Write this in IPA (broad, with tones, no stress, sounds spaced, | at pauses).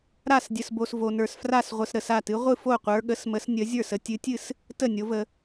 ɾ a˥˩ s dʲ ə˨ s b o˨ s v o˨ n ə˞˨ s f r a˥˩ s ʁʷ ə˨ s ɾ ə˨ s a˥˩ t ɨ˨˦ ʁʷ ɨ˥˩ f o˥˩ qʷ ə˞˨˦ ɠ ə˨˦ s m ə˨˦ s nʲ ə˨˦ zʲ ə˞˥˩ s ə˨ tʲ ɨ˨˦ tʲ ɨ˥˩ s | t ə˥˩ nʲ o˨˦ v ə˨